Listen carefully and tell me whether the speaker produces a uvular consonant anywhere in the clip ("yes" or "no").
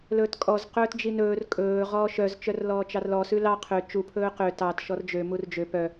yes